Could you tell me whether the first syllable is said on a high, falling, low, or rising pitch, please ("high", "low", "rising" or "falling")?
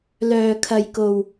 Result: low